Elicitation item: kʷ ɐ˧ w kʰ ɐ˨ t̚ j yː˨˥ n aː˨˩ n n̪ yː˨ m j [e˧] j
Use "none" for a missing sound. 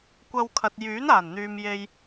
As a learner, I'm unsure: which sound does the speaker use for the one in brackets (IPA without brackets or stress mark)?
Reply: e˧